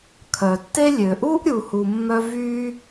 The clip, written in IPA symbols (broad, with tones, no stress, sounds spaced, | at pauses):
kʰ œ˨ tː e˥ lʲ ø˨ ʔ u˥ ʔ ɾʲ u˨ h u˨ mː œ˦ v y˦